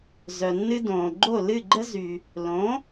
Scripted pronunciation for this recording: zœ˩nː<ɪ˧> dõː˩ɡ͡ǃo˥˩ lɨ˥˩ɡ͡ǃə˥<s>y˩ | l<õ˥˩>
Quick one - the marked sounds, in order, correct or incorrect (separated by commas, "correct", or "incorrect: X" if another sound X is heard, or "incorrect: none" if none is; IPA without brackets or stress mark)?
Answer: incorrect: ɨ˧, incorrect: z, incorrect: õ˩˥